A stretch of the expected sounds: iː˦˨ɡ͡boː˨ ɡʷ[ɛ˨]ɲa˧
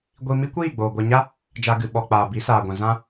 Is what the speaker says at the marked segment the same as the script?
yes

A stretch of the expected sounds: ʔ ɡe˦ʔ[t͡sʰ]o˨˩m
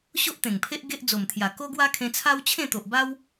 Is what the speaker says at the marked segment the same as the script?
no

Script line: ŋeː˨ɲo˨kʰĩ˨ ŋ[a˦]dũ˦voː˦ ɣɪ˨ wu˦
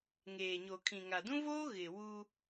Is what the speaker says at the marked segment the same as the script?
no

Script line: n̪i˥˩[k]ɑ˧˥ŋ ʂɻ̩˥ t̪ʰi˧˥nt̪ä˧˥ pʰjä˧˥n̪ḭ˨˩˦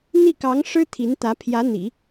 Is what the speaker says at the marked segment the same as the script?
yes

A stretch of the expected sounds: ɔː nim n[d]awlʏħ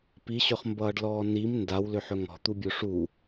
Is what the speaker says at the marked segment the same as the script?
yes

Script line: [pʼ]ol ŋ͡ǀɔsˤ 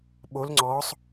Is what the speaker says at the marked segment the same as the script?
no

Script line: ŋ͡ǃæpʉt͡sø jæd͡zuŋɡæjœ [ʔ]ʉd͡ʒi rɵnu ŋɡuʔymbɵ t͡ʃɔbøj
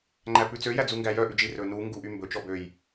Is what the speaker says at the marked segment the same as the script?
yes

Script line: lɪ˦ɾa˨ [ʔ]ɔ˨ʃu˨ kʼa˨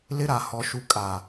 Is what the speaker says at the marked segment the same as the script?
no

